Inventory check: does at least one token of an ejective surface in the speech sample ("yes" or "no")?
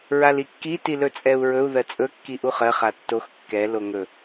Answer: yes